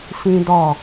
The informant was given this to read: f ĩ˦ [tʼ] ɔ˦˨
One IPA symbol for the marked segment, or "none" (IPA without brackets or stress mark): d